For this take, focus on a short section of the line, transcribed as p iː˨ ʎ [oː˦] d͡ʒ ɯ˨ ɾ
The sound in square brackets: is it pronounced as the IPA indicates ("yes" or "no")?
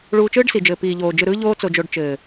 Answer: no